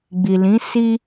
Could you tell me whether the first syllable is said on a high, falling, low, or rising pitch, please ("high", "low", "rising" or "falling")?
low